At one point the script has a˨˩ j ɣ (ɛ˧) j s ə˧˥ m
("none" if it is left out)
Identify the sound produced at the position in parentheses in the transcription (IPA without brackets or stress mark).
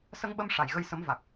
ə˧